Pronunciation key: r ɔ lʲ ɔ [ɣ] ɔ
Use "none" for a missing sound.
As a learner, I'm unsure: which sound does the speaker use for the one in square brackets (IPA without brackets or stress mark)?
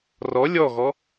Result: ɣ